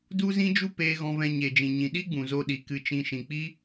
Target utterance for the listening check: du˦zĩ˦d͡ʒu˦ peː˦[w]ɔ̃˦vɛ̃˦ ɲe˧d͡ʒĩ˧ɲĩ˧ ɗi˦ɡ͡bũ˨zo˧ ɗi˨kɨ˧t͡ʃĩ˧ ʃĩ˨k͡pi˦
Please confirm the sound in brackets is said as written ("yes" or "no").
no